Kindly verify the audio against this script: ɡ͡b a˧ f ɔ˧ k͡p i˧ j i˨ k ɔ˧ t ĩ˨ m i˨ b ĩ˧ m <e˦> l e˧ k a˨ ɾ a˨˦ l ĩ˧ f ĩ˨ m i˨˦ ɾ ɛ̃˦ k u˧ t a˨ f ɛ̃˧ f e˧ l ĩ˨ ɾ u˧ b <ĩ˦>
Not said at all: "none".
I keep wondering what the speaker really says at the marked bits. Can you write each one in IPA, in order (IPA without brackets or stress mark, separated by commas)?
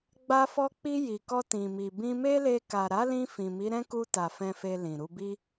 e˦, i˦